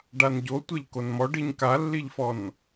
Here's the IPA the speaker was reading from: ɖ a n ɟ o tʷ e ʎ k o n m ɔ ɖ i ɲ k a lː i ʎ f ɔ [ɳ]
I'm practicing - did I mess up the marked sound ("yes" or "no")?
yes